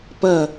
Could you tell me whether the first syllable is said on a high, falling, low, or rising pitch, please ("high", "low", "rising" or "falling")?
falling